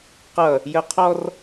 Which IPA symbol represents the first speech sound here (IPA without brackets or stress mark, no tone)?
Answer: q